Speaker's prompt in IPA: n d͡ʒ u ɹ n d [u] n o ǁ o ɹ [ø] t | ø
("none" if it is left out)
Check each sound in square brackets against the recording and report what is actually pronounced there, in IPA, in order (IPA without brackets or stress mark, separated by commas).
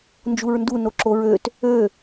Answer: u, ø